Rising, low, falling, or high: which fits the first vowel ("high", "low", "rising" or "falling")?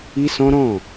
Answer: high